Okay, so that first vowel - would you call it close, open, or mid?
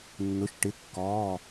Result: close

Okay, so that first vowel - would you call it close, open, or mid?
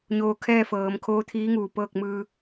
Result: mid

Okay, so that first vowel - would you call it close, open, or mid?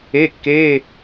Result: mid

